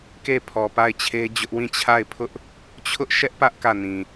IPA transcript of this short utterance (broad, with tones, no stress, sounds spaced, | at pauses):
k e˦˨ pʰ ɔ˨ p a˦˨ ɪ̯ t͡ɕʰ e˦ d͡ʑ ʊ˦ ʔ w ĩ˦˨ t͡ɕʰ a˦˨ ɪ̯ pʰ ʊ˦ ʔ | t͡ɕʰ ʊ˦ ʔ ʃ ɛ˦ ʔ p ä˦ ʔ k ä˦˨ n ĩ˨